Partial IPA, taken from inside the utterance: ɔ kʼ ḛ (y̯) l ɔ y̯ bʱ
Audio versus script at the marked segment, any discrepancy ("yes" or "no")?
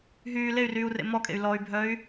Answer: no